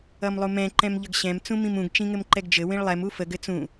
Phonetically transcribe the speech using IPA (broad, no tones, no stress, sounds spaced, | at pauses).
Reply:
ʌ m lˠ u m ɛ̃ ǃ ɛ̃ m ʎ ʌ ɡ ɕ ɛ̃ m t͡s ũ m ĩ m ũ ɡ t͡ʃ ĩ ŋ ɘ m ǃ ɛ ɡ d͡ʒ ɘ w ĩ ɭ lˠ ɛ m u f ə ɡ ɘ t͡s ũ